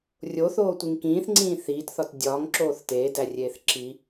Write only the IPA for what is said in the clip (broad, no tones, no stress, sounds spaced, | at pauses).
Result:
rʲ o θ oː tʷ i ŋ k ĩː θ ŋ͡ǀ ĩː θ iː t θ ɒ t dʲ ɒː ŋ ǁ oː θ t eː d æ rʲ eː θ ǁ i